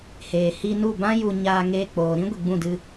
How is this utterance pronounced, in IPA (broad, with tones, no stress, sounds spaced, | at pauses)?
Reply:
h eː˨ h i˧ n u˦˨ b ã˦ j u˧ ɲ aː˧ ŋ eː˧ k͡p oː˨ ɾ ĩ˦ ɡʷ i˨ ɡ͡b ũ˦˨ d ɨ˧